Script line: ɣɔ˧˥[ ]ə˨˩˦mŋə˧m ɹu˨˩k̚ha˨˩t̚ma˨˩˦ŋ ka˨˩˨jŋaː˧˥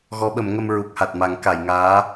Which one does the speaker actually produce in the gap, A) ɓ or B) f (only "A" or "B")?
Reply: A